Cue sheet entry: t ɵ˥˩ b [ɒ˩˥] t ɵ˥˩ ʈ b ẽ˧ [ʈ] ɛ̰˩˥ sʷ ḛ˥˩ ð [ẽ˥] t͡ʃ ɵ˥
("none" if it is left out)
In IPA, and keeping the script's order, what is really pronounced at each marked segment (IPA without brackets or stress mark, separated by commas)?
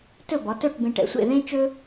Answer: ɒ˩˥, ʈ, ẽ˥